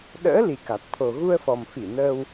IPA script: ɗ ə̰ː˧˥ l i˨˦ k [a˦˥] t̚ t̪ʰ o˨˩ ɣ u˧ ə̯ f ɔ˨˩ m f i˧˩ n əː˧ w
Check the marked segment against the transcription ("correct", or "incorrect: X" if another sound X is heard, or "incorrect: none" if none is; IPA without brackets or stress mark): incorrect: a˨˩